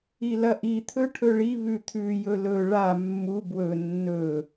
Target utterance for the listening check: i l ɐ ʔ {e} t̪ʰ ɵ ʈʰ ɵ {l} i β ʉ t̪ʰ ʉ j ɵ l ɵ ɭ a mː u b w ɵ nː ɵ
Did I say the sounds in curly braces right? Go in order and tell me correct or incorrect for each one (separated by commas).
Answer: incorrect, incorrect